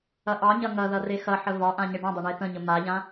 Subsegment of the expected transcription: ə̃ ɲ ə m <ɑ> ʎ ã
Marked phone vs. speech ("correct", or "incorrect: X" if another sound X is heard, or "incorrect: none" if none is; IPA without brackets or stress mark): incorrect: a